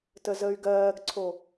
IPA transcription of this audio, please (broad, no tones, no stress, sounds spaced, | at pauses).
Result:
t ə z ə y̯ ɡ ɜː ɡ ǀʰ o